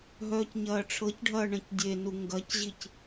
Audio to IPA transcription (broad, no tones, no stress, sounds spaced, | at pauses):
ɦ œː c ɲ ɐː ʈ͡ʂʰ ɤ c ɖʱ ɐː ɳ ɐ̃ c dʲ e n u ŋ ɡ ɐ c ʑ i c